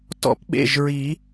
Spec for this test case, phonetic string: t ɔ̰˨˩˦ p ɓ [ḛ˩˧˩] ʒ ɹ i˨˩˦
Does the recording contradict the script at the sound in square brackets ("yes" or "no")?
no